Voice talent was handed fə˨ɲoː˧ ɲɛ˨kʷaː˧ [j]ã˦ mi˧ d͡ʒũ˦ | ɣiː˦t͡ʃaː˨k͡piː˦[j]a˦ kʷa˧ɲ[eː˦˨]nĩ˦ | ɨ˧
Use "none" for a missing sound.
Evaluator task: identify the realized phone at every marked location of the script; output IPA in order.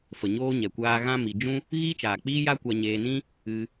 ɣ, j, eː˧

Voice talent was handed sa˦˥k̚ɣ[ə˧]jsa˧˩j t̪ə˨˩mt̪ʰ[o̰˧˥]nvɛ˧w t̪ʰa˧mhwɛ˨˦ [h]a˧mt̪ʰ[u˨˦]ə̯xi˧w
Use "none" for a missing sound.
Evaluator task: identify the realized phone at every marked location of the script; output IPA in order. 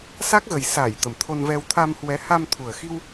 ə˨˩, o˧, h, u˨˩

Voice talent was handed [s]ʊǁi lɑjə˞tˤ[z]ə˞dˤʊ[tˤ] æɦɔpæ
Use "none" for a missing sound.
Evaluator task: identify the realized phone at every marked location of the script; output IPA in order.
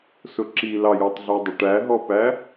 s, ɮ, ʈ

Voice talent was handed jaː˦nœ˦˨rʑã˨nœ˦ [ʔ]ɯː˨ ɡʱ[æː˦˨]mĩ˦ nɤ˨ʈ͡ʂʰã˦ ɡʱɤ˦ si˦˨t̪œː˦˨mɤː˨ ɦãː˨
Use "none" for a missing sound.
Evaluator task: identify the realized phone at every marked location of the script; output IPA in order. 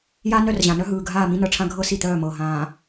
ɦ, aː˦˨

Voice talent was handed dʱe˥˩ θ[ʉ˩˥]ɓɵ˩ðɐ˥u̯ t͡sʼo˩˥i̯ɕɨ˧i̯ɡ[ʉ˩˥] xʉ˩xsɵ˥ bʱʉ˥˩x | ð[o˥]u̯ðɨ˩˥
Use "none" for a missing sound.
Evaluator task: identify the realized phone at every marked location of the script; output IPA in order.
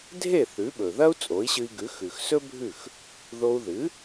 ʉ˩˥, ʉ˩˥, o˧

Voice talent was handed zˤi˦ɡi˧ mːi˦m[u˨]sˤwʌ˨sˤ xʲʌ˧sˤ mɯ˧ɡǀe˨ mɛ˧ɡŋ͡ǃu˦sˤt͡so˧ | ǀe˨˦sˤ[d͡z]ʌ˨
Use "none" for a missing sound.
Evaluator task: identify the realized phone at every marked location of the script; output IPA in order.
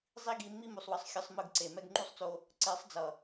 u˨, d͡z

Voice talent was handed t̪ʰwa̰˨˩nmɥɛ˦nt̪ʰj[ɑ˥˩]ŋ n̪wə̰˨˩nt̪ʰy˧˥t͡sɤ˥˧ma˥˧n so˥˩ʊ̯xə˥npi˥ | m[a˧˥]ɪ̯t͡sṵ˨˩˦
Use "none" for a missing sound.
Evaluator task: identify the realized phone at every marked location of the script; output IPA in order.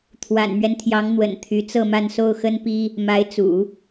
ɑ˧˥, a˧˥

